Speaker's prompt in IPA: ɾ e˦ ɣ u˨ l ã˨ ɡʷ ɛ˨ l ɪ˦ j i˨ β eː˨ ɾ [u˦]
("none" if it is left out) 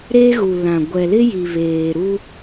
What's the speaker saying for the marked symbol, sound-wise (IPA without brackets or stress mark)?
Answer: u˦